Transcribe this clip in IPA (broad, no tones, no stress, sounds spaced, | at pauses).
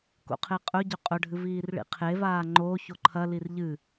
k o̰ qʰ e qʼ ɵ ɟ ɵ qʼ ɵ ɖʱ ɨ v iː r ɭ ḭ qʰ e v aː ŋ͡ǃ o ç o ǃʰ ɐ l i r ʎ ɨ